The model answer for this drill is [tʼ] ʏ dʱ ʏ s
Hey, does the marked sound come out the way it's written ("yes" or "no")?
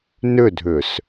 no